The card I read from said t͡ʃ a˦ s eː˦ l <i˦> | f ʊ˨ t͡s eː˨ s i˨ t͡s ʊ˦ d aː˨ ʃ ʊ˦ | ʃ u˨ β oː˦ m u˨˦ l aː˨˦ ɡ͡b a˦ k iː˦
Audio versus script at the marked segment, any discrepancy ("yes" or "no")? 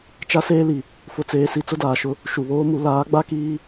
yes